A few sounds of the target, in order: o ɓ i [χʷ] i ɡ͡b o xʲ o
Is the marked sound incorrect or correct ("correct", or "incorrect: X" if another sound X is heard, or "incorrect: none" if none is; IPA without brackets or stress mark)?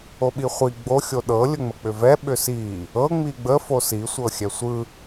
correct